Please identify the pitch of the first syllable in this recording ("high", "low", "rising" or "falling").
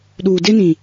low